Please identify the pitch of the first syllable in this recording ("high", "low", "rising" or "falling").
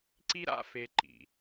high